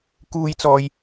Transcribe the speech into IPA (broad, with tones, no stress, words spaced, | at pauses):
kuː˧jt͡sɔː˨j